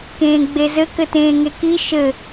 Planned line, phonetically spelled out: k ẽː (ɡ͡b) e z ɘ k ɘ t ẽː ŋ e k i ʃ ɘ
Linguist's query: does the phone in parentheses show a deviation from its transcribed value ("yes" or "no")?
no